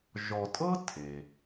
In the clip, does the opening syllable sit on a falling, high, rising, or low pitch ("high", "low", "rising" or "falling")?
low